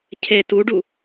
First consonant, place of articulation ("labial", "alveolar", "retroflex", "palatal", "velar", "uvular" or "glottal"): palatal